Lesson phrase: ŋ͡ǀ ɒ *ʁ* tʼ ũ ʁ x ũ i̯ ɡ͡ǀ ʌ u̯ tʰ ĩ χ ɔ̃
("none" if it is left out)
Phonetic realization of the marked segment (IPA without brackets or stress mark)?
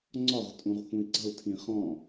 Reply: ʁ